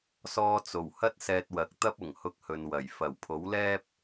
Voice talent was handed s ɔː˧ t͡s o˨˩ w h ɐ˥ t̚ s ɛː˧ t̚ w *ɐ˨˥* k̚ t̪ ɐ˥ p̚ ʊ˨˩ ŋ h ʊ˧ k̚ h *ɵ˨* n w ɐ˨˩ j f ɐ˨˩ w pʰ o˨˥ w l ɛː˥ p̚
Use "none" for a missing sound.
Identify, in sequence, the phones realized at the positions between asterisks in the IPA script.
ɐ˨˥, ɵ˨

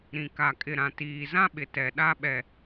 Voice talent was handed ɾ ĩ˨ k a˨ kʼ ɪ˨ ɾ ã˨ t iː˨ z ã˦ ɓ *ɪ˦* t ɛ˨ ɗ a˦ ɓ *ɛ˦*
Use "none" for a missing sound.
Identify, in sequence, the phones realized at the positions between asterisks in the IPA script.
ɪ˨, ɛ˨

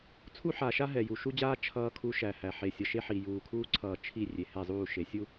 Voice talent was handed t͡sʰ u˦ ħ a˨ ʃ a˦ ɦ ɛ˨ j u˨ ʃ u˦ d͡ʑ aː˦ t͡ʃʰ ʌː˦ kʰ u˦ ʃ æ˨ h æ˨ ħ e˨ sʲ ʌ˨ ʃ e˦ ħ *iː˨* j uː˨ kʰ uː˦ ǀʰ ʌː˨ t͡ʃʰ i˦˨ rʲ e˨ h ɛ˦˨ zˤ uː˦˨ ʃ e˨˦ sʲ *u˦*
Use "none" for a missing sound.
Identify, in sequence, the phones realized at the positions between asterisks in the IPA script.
i˨, u˦

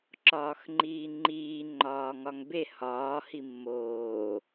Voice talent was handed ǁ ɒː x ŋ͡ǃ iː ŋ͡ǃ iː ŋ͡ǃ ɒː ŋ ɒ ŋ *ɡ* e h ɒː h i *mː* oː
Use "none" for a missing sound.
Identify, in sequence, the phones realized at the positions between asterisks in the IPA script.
b, mː

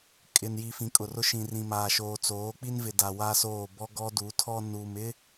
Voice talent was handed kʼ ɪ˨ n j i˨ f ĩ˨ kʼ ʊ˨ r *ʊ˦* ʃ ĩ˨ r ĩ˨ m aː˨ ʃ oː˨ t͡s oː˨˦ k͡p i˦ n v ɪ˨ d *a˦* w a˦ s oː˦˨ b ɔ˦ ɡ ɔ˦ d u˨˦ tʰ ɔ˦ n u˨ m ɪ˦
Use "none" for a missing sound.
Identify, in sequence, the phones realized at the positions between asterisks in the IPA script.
ʊ˦, a˨

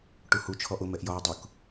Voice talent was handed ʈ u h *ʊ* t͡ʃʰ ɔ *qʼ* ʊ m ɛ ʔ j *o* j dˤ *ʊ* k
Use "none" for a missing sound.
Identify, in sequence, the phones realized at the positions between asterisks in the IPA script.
u, ʔ, ɔ, ʊ

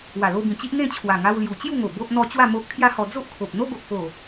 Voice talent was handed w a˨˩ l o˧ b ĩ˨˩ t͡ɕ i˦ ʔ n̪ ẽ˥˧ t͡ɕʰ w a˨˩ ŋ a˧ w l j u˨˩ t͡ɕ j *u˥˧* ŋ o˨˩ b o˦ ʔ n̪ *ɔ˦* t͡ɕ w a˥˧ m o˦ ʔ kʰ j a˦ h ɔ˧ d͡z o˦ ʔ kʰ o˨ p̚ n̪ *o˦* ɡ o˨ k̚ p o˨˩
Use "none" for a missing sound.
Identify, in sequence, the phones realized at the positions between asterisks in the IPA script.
u˥˧, ɔ˦, o˦

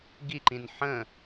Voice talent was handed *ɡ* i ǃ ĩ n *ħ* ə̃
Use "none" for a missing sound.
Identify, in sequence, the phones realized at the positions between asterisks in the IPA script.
ɡ, ħ

